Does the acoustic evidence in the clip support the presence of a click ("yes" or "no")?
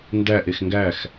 no